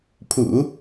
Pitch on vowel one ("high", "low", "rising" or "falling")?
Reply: low